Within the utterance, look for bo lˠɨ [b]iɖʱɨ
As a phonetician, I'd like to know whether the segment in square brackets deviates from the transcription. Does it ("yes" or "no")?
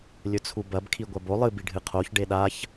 no